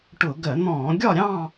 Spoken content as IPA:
ʈ ʊ˧˩˧ ɡ ɜ˧˩˧ n̪ ɔ̃ː˧˩˧ ɡʲ ɒ˥˧ ɾʲ ɑ̃˥˧

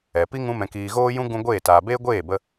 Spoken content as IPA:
ɛ˨ p i˦ ŋ ũ˧ m ɛ̃˨ k iː˨ ɣ oː˦ j ũ˦ ɡ ũ˧ ɡʷ eː˦˨ t aː˨ b eː˦ ɡʷ eː˦˨ b ə˧

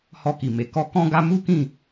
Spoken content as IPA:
h ɔ˧ k i˨ m e˨ k ɔ˧ k ɔ̃˦ ɡ a˦ m u˦ k ĩ˦˨

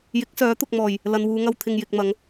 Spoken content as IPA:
j ɪ˨˥ k̚ s œː˨˥ t̪ ʊ˨ k̚ m ɔː˨˩ j | l ɐ˨ n w uː˨˧ ŋ ɐ˧ w t̪ʰ ɪ˨ ŋ j ɪ˨ k̚ m ɐ˨˧ ŋ

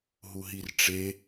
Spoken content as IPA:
ɦ u ɦ i r ʈ͡ʂ e

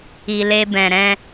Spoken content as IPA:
i˧ l e˦ b ɛ̃˧ ɾ ɛ̃˦

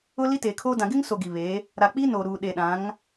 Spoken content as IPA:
ʊ˦ l i˦ t e˨ kʰ oː˦ d ã˨ ɡ ɪ˦ ŋ s o˨ ɡ i˨ β e˨˦ | ɾ a˨ k͡p i˦ n o˨ ɾ uː˨ ɗ e˨ ɗ ã˨˦ ŋ

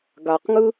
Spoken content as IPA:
ɡ a q ŋ ɯ

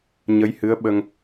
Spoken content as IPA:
ɲ ə˧˥ j h ɨ˧˥ ə̯ ɓ ə˧ ŋ

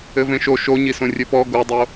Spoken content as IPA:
ɘ v ẽ ʃ o ʃ o ɲ i s õ rʲ ɘ p ɔ ɡ o dˤ o

